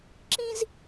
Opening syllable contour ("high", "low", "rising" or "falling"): high